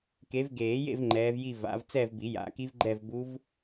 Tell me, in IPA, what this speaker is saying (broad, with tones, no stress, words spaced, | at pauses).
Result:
ke˨˦vɡeː˨˩˦jḛ˥˧v ŋ͡ǃɛː˨˦vji˥˧ va̰˨˦v t͡sɛ˥˧vbi˨˩˦ ja̰˨˩˦ki˦˥v ɡ͡ǃɛ˥˧vbu˦˥v